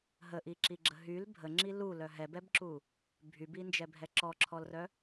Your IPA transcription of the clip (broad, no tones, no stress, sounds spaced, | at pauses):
ɦ ə ʔ i ǁ i ɡ͡ǁ ə ɦ y l bʱ ə ŋ͡ǁ i l u l œ ɦ ɛ b ɛ b ǁ u | bʱ y b i n d͡ʒ ɛ bʱ ɛ ǁ ɔ ǁʰ ɔ l r œ